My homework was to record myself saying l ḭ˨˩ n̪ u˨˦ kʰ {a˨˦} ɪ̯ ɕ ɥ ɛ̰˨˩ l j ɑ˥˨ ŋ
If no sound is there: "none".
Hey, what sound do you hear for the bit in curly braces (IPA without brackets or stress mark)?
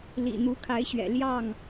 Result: a˨˦